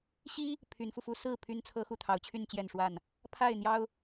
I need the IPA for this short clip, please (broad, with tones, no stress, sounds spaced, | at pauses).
ɕ i˦ | pʰ y˨˦ n f u˧ f u˦ s ɹ̩˥˨ pʰ y˦ n t͡sʰ ɤ˦ x u˥˨ t̪ʰ ɑ˨˦ ʊ̯ t͡ɕʰ y˥˨ n t͡ɕ j ɛ˥˨ n ʂ w a˥˨ n | pʰ a˥˨ ɪ̯ n̪ j ɑ˦ ʊ̯